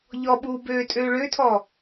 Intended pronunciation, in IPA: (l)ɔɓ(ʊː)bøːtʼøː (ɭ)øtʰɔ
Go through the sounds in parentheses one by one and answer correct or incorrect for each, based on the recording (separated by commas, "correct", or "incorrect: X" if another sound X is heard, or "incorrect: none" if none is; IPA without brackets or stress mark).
incorrect: ʎ, incorrect: uː, correct